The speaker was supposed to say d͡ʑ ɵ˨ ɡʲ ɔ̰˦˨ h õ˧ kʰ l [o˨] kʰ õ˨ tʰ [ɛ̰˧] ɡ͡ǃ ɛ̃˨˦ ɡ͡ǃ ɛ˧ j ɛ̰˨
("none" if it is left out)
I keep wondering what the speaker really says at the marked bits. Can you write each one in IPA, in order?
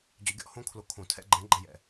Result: o˨, ɛ̰˧

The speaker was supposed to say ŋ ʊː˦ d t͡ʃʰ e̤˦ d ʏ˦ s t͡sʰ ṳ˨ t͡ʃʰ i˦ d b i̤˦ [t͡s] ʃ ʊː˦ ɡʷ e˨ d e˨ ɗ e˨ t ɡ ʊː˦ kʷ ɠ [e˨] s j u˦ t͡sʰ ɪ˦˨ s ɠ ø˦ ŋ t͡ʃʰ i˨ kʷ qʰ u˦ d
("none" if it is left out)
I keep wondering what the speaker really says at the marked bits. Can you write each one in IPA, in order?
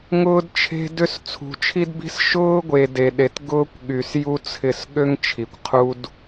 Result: s, y˨

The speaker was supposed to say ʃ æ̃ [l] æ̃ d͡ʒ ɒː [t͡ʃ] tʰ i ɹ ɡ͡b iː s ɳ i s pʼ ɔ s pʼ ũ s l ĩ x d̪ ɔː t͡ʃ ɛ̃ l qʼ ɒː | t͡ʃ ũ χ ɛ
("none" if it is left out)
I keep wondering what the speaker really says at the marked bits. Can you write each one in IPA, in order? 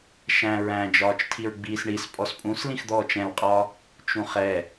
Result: ɹ, t͡ʃ

